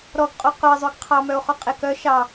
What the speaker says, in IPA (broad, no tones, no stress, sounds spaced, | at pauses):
ɾ ɔ ɡ qʼ o q ɵ e̯ zˤ ø ɡ qʰ ɑ m œ o̯ χ ɔ qʼ e k œ ʃ ɑ